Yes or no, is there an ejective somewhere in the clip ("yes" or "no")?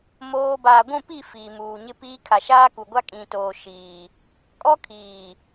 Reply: yes